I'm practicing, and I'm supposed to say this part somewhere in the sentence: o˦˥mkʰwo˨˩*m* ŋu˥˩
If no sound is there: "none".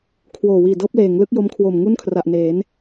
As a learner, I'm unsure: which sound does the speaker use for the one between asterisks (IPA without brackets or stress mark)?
m